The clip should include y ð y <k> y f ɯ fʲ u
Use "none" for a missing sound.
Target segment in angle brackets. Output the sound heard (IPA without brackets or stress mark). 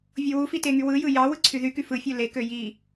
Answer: k